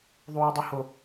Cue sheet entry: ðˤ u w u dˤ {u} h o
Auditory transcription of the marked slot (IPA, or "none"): u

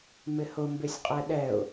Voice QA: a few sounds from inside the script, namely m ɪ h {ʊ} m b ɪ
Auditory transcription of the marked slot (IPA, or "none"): ʊ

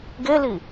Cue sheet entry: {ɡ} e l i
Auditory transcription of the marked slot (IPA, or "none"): ɡ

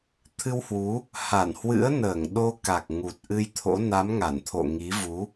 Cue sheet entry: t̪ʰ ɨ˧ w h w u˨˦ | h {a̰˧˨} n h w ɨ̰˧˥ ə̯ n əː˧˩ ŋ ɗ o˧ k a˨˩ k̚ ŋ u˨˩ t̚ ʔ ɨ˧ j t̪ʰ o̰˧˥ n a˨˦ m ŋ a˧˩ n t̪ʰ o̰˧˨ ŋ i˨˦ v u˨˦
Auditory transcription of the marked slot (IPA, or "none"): a˧˩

